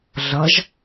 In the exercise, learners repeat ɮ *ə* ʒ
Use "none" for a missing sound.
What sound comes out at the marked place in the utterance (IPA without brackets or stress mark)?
ʌ